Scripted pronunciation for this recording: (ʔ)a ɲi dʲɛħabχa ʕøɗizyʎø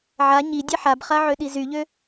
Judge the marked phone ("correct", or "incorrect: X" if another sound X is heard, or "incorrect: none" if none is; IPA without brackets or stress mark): incorrect: ʕ